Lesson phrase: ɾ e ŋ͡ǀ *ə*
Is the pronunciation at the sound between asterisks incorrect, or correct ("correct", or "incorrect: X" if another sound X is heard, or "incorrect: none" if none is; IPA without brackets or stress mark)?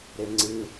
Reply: incorrect: ɨ